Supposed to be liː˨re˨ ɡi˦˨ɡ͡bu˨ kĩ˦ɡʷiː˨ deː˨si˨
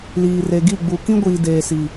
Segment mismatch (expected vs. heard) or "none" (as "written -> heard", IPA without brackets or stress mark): none